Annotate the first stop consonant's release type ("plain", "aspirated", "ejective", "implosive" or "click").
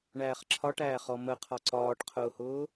click